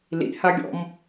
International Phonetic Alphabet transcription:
l ḭ h a ɡʲ ɔ̰ m

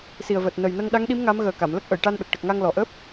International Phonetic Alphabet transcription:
s i˨˩ ə̯ v əː˨˩ t̚ n ə˨˩ j n ə˧ ŋ ɗ a˧˥ ŋ ɗ i˧˥ m ŋ a˧˥ m ɣ əː˨˩ k a˨˩˨ m l ə˦˥ k̚ ʔ ə˨˩˨ j ʈ a˧ n ɗ ə˨˩ k̚ ʈ ə˨˩ k̚ ŋ a˧ ŋ l ɔ˨˩ ʔ əː˦˥ p̚

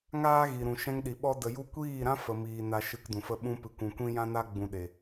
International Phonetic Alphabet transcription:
ŋ aː˦ ɣ i˨ ɾ ũ˨ ʃ ɛ̃˧ ŋ ɗ i˨ ɓ ɔ˦ d ə˧ j u˦ kʷ iː˦˨ ɾ ã˦ f ə˨ m iː˧ n a˦ ʃ ɨ˧ k d ũ˨ f ə˦˨ ɓ ũ˧ p ɨ˨ kʷ ũ˨ kʷ ĩ˦ j ã˦ n a˦ ɡ͡b ũ˧ ɗ e˨

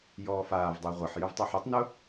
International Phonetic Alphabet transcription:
j ɔː f aː v dˤ ɛ ʁʷ ɐ ħ j ʏ v tˤ y ħ y tˤ n ʊ

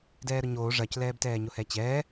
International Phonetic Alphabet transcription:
d ɛː ɾ ʊ ɲ oː ʐ ɐ c l ɛː b t ɛː ɲ ʊ h ɛ t͡ɕ ɛː

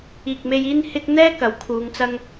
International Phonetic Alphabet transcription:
iː˨ k̚ m e˧ j iː˥ n h ɪ˥ k̚ n̪ ɛː˥ k ɐ˨˥ w kʰ uː˨˧ ŋ t͡s ɐ˥ ŋ

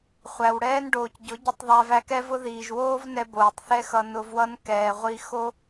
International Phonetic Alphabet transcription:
χʷ æ˨ w ɽ ɛː˦ n ɖ oː˨ c ɟ ʊ˨˦ ɟ ʊ˧ tˤ ðˤ æ˧ v æ˧ k ɛ˦ v ʊ˦ ð iː˨ ʒ w oː˦ v n ɛ˧ b oː˨ tˤ θ ɛ˧ x ʌ˨ n ʊ˧ v w ʌ˦ n k ɛː˨ ʁʷ i˧ x o˦

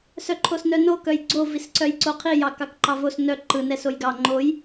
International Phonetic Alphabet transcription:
s œ ǃʰ o s n œ n o k œ j ɡ͡ǀ o v i s ǀ œ j ǀ o qʰ i j ɑ k ɑ k ǃ ɑ v o s n œ ǃ ɯ n ɛ s o j ɡ ɑ ŋ͡ǃ o j

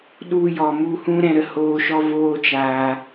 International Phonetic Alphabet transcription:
ɗ u˧ j ɔ˨ m u˧ h ũ˦ ɾ ɛ̃˧ ɾ ə˧ h oː˦ ʃ ɔ˦ v oː˦ t͡ʃ aː˧

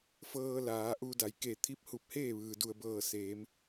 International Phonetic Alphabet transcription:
f ɤː˧ l aː˩˧ ʔ u˧ d a˩˧ j k e˧˩ t̪ʰ i˧˥ p̚ h u˧˩ p̚ h eː˥˨ ʋ ɯː˩ d u˧˩ ə̯ b ɤː˧˩ s eː˩˧ m

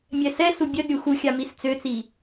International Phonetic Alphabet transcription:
mʲ ɛ s ɛ s u bʲ œ d ɾʲ u x u xʲ a m i s t͡s ø t͡s i

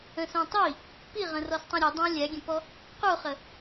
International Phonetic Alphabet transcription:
ə̃ s õ tˤ i | p i ʁ ə̃ r ɔ s tˤ ĩ ɾʲ ə dˤ õ lʲ æ ɡʲ ə̃ p ɔ | q u χ ə

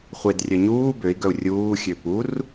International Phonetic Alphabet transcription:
χʷ e d rʲ œ ɲ uː b ø i̯ ɡ œ u̯ rʲ uː xʲ ø p u r

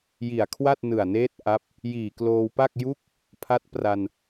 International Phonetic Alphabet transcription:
j i˨˩ a̯ kʰ w a˥˩ t̚ n ɯ˨˩ a̯ n eː˦˥ t̚ ʔ a˦˥ p̚ | j iː˨˩ k l oː˧ w p a˥˩ k̚ j u˦˥ k̚ | pʰ a˦˥ t̚ p r a˧ n

